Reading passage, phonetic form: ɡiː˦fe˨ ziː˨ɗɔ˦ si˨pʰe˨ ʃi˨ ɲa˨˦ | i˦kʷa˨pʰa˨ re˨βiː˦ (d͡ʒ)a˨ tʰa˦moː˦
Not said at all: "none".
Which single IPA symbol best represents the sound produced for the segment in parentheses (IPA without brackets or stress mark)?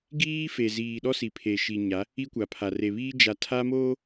d͡ʒ